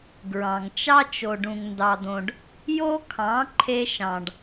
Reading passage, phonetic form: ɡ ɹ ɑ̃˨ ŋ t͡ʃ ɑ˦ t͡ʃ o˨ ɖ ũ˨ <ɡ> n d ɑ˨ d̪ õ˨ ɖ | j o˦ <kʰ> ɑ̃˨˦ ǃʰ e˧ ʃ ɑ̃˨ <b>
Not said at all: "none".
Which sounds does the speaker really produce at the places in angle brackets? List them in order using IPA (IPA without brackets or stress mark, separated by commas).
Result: ŋ, kʰ, ɖ